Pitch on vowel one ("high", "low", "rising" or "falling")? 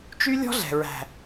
high